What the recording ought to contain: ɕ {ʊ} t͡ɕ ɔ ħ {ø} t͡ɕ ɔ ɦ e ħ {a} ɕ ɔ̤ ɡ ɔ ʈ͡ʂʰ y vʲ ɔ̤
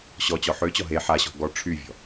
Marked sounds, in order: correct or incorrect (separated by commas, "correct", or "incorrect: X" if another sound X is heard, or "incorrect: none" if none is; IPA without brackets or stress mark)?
incorrect: ɔ, correct, correct